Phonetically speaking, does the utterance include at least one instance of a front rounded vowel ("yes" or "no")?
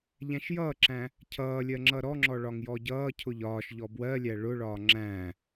no